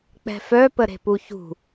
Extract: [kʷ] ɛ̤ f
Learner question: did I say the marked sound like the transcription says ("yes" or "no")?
no